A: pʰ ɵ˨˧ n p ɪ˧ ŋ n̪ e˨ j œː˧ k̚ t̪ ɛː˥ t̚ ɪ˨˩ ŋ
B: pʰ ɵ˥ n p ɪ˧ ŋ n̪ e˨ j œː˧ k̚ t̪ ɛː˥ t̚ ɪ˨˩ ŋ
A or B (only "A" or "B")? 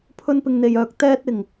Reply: B